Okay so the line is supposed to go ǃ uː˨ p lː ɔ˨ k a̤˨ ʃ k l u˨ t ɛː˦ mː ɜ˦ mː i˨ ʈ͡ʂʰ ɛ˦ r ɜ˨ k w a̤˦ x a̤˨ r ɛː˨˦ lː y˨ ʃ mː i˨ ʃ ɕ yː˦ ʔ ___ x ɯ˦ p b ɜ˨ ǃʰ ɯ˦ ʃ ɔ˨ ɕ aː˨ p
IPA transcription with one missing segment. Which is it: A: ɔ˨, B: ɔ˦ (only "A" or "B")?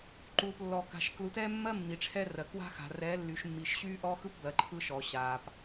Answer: B